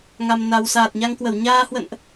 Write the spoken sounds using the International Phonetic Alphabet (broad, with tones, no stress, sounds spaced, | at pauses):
ŋ a˨˩ m n a˨˩ w s aː˨˩ t̚ ɲ a˧ ŋ k w ə˧˩ w ɲ aː˧ h w ə̰˧˨ n ʔ